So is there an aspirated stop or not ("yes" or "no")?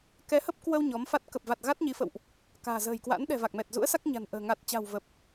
no